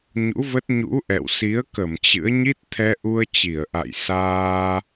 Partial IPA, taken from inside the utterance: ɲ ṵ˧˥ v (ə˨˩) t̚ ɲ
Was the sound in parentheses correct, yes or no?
no